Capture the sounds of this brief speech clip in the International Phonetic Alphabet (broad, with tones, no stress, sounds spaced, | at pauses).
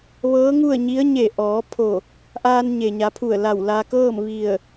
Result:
ʋ ɤː˧˥ ŋ u˥˨ ə̯ ɲ i˧˥ ə̯ ɲ e˧˩ ʔ ɔː˩˧ pʰ o˧˩ | ʔ aː˧ n ɲ e˩ ɲ a˩˧ pʰ u˧˩ ə̯ l a˧˩ w l a˧ k ɤː˥˨ m ʋ i˧˩ ə̯